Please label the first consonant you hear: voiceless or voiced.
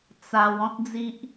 voiceless